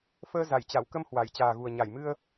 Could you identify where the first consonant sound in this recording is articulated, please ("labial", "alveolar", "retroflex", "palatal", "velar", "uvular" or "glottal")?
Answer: labial